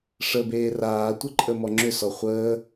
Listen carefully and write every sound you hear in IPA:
ʂ ə b eː r aː tʷ ə ǃʼ ə m ɔ ŋ͡ǁ ʏ s ɔ χʷ əː

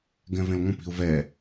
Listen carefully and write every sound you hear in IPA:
ɡ ɛ̃ v ẽ l ŋʷ ə̃ p i̤ ʊ̯ v ɛ

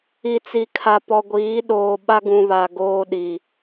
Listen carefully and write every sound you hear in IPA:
i˨ t͡s i˨ kʰ a˨ p ɔ˨ ɡʷ iː˨˦ ɗ oː˨ ɓ a˦ ɡ ũ˨ β a˨ ɡ oː˦ ɗ i˨

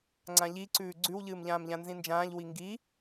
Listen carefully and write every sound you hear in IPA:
ŋ͡ǀ ã ʎ i ǀ ʉː ɡ͡ǀ ʉ w ʎ ɨː m ʎ ãː m ʎ ã n z ĩ n d͡ʒ ãː ʎ w i ŋ ɡ i

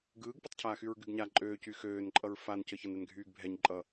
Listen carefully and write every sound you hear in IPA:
ɡ ɯː ɡ p ɯ tˤ cʰ aː x y ɹ ɡ y ɡ ɲ a ǃʼ øː c y x øː n ǃʼ ʌ ɹ f a n c ə ç ʌ n ɛ n ɡʱ yː ɡ bʱ ɛ ɲ ǃʼ ʌ

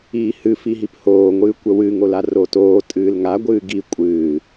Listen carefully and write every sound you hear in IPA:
iː h ɨ f i ɦ i p h oː ŋʷ ɨː kʷ ə w ɨ ŋ o l a r o t oː tʼ ɨː l ŋ a ɡʷ ɨː ɡ i kʷʼ ɨː

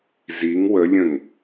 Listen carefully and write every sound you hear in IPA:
z i ŋ w ə lʲ ə̃ ŋ

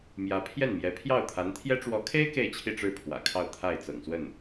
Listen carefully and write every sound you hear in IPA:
m j ä˧˥ pʰ j ɛ˥˩ n m j ɛ˧˥ pʰ j ɑ˥˩ ʊ̯ t̪ʰ a˧˥ n t̪ʰ j ɛ˥ ʈ͡ʂ w ɔ˧˥ kʰ e˥ ɪ̯ k e˥˧ ɪ̯ t͡ɕʰ i˥˧ ʈ͡ʂ ɻ̩˥˩ pʰ w ä̰˨˩ kʰ ɑ˥˧ ʊ̯ t̪ʰ a˥˩ ɪ̯ t͡s ɤ̰˨˩ ŋ s w ə˥˩ n

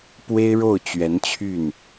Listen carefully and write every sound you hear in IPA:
p w e˥ ɪ̯ ɻ o˥˩ ʊ̯ t͡ɕ ɥ ɛ˧˥ n t͡ɕʰ y˥˩ n

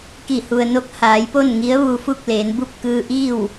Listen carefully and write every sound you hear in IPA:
k i˧˩ h u˩ ə̯ n o˧˥ k̚ h aː˩˧ j p o˥˨ n ŋ i˧˥ ə̯ ʋ u˧ f u˥˨ k̚ l eː˩˧ n b u˥˨ p̚ k ɯː˧ ʔ iː˥˨ w

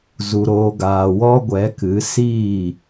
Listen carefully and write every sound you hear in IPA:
z u˨ ɾ oː˨ ɡ aː˨ w ɔ˦ ɡʷ ɛ˨˦ k ɨ˨˦ s iː˦˨

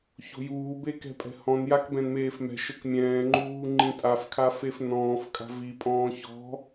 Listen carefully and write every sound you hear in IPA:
ç o̤ j uː b e k ɛ̤ pʼ ɛ̤ h ɔ̃ n j a k b ɛ̃ n m eː f m ɛ̤ ʃ ɘ k mʲ ɛ̃ː ŋ͡ǃ uː ŋ͡ǃ ĩ tʼ a f kʰ a f e f n ɔ̃ː f kʼ a̤ v i pʼ ɔ̃ː ç ɔ̤

